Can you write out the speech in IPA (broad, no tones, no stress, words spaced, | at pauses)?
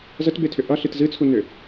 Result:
zətbetʰʏ ʔʌɬɨt zɨt͡sʰunʏ